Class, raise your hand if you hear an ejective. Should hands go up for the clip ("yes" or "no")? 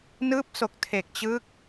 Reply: no